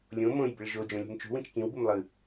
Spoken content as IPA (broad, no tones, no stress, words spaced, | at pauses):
lʲõ mõjbɪɭ ʒod͡ʒõlʲṳm t͡ʃṳwĩt͡ʃ kĩwbum lˠɯ